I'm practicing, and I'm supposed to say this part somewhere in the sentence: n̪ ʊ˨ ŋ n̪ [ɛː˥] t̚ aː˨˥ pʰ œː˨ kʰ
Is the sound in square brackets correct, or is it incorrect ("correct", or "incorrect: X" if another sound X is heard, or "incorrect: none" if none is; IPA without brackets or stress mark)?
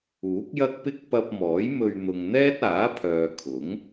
correct